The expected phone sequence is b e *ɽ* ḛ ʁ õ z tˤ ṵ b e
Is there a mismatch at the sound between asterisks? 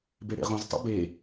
no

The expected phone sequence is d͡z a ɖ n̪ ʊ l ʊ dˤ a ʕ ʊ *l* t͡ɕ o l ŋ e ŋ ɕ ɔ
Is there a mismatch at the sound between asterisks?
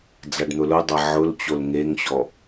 no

